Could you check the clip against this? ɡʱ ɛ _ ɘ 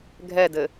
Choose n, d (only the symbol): d